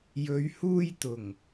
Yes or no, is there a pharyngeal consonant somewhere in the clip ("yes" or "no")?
no